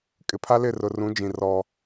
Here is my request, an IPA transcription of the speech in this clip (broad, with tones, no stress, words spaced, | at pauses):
kʼɪ˨pʰa˦lɪ˦˨ rʊ˨rũ˨˦d͡ʒĩ˨ rɔ˦